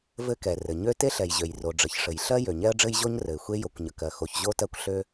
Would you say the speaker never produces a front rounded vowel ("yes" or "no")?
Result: no